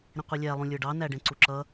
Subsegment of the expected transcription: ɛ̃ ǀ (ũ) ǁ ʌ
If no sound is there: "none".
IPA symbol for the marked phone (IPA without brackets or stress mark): u